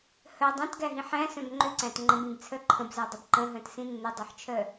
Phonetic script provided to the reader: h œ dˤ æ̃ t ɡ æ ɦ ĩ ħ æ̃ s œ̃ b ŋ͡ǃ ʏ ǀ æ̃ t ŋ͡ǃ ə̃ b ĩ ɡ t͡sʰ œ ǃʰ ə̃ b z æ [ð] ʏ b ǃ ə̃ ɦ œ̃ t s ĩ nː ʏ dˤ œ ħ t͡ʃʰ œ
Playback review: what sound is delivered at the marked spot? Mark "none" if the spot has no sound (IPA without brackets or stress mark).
dˤ